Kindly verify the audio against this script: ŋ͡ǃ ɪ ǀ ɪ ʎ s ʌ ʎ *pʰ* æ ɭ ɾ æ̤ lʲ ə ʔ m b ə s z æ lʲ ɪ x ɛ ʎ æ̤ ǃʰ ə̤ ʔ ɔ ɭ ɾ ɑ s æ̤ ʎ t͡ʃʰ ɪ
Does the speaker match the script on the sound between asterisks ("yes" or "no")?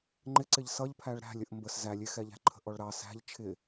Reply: yes